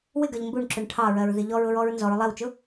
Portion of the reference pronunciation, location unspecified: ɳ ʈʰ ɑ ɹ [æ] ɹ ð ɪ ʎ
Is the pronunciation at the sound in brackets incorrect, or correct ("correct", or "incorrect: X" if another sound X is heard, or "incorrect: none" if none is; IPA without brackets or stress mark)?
incorrect: ɜ